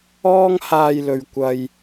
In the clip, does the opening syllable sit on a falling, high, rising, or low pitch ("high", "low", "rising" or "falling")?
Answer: high